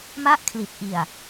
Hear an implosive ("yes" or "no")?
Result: no